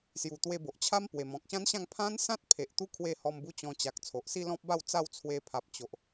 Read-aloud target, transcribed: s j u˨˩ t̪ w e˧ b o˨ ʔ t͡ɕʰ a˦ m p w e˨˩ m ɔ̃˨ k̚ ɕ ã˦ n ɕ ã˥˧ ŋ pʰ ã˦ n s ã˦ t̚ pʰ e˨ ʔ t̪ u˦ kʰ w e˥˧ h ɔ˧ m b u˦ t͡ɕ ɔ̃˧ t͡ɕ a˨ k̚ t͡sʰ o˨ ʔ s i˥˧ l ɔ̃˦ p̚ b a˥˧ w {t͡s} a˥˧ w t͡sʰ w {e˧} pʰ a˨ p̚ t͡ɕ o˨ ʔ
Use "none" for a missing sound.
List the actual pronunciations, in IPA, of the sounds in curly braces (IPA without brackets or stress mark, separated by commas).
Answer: t͡s, e˧